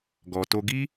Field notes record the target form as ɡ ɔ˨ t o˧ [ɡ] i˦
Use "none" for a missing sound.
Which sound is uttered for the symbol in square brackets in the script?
ɡ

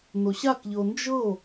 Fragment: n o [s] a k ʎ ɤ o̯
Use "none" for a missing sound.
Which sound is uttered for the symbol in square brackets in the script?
ɕ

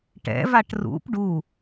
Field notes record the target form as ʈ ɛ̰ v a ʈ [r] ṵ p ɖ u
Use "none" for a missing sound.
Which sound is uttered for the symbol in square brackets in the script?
r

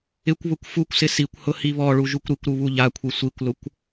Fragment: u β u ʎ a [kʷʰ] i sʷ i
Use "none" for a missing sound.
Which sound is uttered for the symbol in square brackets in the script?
kʷʰ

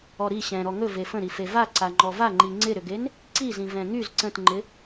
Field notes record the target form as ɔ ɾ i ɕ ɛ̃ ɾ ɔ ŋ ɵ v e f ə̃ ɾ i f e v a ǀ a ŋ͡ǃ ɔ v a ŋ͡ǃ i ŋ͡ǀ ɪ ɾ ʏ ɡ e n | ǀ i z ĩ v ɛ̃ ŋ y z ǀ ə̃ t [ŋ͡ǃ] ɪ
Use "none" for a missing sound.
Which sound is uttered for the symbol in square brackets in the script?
ŋ͡ǃ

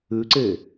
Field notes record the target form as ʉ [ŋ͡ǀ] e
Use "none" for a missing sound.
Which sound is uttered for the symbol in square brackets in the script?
ǀ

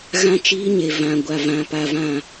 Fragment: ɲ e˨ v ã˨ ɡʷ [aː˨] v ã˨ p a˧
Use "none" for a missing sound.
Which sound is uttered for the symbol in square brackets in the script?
a˨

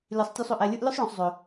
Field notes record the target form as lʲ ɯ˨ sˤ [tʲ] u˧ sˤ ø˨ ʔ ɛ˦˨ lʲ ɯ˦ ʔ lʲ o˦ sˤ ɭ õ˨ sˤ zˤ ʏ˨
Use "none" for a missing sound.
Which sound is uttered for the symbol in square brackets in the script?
tʲ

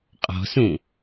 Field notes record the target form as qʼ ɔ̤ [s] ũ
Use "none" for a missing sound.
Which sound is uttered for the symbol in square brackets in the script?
s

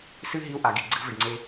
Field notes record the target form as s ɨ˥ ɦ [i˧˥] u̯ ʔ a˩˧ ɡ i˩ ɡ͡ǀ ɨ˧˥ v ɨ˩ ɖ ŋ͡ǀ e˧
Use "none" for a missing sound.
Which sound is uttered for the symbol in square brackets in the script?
i˧˥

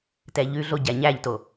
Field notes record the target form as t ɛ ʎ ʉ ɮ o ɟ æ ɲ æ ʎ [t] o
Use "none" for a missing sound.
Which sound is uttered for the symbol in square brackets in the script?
t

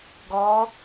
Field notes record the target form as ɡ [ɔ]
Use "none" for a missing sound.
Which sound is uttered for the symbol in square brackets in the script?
ɔ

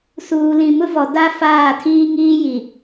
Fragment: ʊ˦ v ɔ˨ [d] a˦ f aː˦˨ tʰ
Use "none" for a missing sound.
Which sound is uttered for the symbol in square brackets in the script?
d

